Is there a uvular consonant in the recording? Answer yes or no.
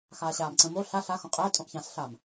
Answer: yes